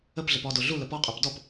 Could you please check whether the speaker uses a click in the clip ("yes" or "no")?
no